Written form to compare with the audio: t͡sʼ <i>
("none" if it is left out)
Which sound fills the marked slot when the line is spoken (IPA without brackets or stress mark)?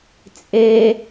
e